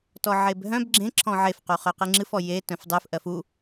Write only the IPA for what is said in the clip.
t ɔ ʕ e b ɦ œ̃ b ɡ͡ǁ ẽ ǁʰ ɔ̃ ʕ e f q u χ œ q ɨ ŋ͡ǁ ɨ f ɔ j e t œ̃ f dˤ ɨ f ʔ ɜ f u

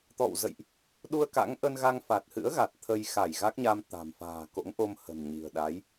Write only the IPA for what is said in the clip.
t̪ ɔ̰˧˨ w z ə̰˧˨ j ʔ | ɗ u˧ ə̯ k a̰˧˥ ŋ ʔ ə˧ n ɣ a˧ ŋ f a˨˩ t̚ h ɨ̰˧˥ ə̯ ɣ a˨˩ t̚ t̪ʰ ə˧ j x a˧˩ j ɣ a˦˥ k̚ ɲ a˧ m t̪ a̤˨˩ m f a̤ː˨˩ k o̰˧˥ ŋ ʔ o˧ m h ə̤˨˩ n ɲ i̤˨˩ ə̯ ɗ a˨˦ j

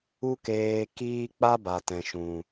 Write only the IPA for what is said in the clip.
u˦ k eː˧ k iː˦ k͡p a˦ b a˨ t ɛ̃˨ ʃ ũ˨

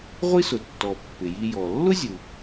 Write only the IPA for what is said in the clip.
ʁʷ i˥ s ʊ˩ tː ɔ˩ pː ɪ˩ j i˧ j ɔ˩ lː ʊ˥ zʲ u˩

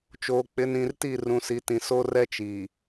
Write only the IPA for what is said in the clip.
t͡ʃ oː˨ k͡p ɪ˨˦ n ĩ˨ r t i˦˨ r ũ˨ s i˨˦ t ĩ˨ s o˦ r ɛ˦ t͡ʃ i˨

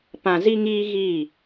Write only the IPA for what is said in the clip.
p ã˨ z i˦ ŋ iː˦ ɣ iː˦˨

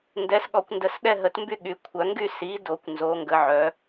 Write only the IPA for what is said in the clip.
n d ɛ˩˥ s ɠ ɔ˨˩˦ kʷ n d ə˩˥ s ɗ ɛ˥˧ ɦ ə˨˩˦ t m b y˥˧ ɠ y˨˩˦ kʷʰ œ˨˩˦ ŋ ɡ y˥˧ s i˩˥ d o˨˩˦ kʷ n z o˩˥ ŋ ɡ ə˩˥ ʕ œ˩˥

